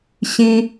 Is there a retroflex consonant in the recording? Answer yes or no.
no